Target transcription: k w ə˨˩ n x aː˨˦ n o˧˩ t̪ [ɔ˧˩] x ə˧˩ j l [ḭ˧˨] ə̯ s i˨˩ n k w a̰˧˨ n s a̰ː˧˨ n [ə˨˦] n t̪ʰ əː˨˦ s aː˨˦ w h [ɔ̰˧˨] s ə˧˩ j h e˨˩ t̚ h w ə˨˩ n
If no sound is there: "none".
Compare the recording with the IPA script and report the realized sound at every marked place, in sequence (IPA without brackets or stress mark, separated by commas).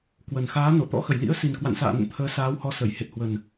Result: ɔ̰˧˥, ḭ˧˥, ə̰˧˨, ɔ˨˦